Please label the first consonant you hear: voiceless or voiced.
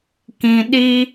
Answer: voiceless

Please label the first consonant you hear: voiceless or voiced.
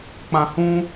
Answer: voiceless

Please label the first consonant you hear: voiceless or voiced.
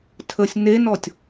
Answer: voiceless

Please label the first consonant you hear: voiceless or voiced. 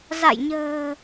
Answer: voiced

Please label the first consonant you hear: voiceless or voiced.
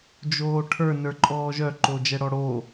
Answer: voiced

